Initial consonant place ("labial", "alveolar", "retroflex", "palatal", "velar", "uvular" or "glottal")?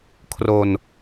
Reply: velar